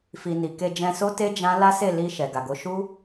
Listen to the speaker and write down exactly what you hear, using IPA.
f i˨ n i˨ k e˧ d͡ʒ ɛ̃˧ s o˦ t e˦ d͡ʒ ã˦ l a˦ s e˦˨ l i˧ ʃ ɛ˨ ɡ a˨ ɡ o˨˦ ʃ u˦

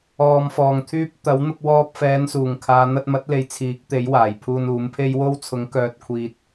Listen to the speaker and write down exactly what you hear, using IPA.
ɔː˨ m f ɔː˨˩ ŋ t̪ʰ yː˧ p̚ t̪ ɐ˨˥ w n̪ ʊ˧ k̚ w ɔː˧ p̚ f ɛː˨˧ n s uː˨˩ ŋ kʰ aː˨˧ n̪ ɐ˧ t̚ m ɐ˨˥ t̚ l e˨ j t͡sʰ iː˨˥ k̚ t̪ e˨˥ j w aː˨˩ j pʰ uː˧ n uː˨˥ m pʰ e˥ j w o˥ w t͡sʰ ʊ˨˥ ŋ k œː˨ t̚ kʷʰ iː˨ t̚

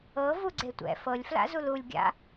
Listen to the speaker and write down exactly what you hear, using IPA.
ɤ v u ɡ͡ǀ e tʷ ɛ̰ f ɤ lʲ f l a̰ z u l u lʲ ɡʲ a̰

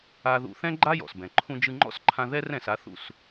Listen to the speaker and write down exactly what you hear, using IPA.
a˧ ð ṵ˧ θ ɛ̃˥ ɡ͡ǃ a˥ j ɔ̰˩ s b ɛ̃˩ ǃʰ ũ˧ d͡ʒ ɯ˧ ŋ͡ǃ ɔ̰˥˩ s ǃʰ ã˧ ð ɛ˥ r ɛ̃˥˩ s a˩˥ θ ṵ˥˩ s

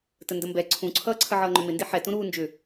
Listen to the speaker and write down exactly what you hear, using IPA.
t ə n d ə m b ɛ ǀʰ ũ ǀʰ ʌː ǀʰ ə ʕ ʌː ŋ͡ǃ ʏ m ɪ n d i ħ ɛ t ũ ɾ uː n d͡ʒ ʏ

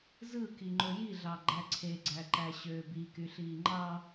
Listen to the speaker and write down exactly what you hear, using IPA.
z ɯ k i ŋ͡ǃ o j i ɮ ɑ ɡ͡ǃ æ ǀʰ e ɡ͡ǀ æ ǃ æ ɕ øː b i k y ɬ iː ŋ͡ǃ ɑ

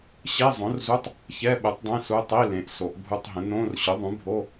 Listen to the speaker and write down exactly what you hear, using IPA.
ɕ e˧˥˧ zˤ õ˩˥ r z u˧˥˧ tˤ | ç ɛ˧˥˧ ɓ ɯ˩˥ tˤ dˤ ẽ˧˥˧ s u˧˥˧ tˤ i˧˥˧ l ẽ˩˥ ʔ s o˩˥ ʔ bʱ u˧˥˧ tˤ ɦ ə̃˩˥ n õ˧˥˧ r ɕ ɯ˩˥ ðˤ ũ˩˥ bʱ o˧˥˧

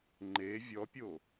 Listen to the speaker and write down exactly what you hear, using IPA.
ŋ͡ǃ e vʲ ɔ pʲ o

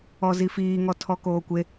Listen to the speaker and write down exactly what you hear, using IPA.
ɔ z i f iː ŋ ɔ tʰ ɔ k oː kʷ e

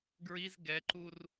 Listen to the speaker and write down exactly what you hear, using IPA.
ɡ ɹ i z ɡ ɛ ǃ u r

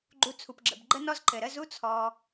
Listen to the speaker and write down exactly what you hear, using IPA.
ɡ͡ǃ u˦ t͡sʰ u˧ p ɡ͡ǁ ə̰˧ b ɡ͡ǃ ə˦ n ɔ˦ z ǃ ɘ˨ ɾ ə˦ z u˦ t͡sʰ ɔ˧

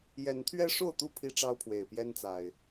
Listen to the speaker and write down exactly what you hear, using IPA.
j ɛ˨˦ n t̪ʰ ɥ ɛ˦ ʂ o˥˨ ʊ̯ t̪ u˥˨ pʰ i˦ ʈ͡ʂ ɑ˦ ʊ̯ pʰ w e˨˩ ɪ̯ p j ɛ˦ n t͡s a˨˩ ɪ̯

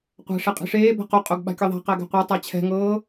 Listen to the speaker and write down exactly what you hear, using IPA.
qʷ æ̤ ʂ e qʼ e̤ ʂ eː b ɛ̤ q ʊ qʼ ʊ ɡ ɓ a̤ kʲ ɤ ðˤ æ̤ q æ ɡ ɛ̤ qʷ a tˤ a t͡ɕʰ ɛ̤ ŋ ɤː

